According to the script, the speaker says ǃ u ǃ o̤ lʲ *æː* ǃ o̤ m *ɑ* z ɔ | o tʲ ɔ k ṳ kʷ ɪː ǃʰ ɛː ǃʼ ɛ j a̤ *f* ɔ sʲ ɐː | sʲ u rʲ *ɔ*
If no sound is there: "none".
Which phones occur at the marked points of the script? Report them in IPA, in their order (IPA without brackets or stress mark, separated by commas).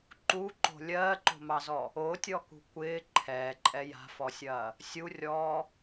ɜː, ɑ, f, ɔː